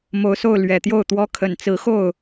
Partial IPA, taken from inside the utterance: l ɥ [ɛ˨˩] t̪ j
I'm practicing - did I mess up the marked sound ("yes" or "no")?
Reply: no